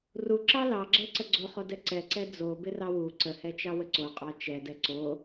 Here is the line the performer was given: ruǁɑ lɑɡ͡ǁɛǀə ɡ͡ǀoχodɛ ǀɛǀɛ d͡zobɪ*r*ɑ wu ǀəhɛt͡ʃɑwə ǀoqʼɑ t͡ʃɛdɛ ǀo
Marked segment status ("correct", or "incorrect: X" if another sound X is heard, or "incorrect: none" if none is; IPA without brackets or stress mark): correct